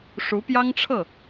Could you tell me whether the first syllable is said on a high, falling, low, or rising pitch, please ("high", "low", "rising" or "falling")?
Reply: rising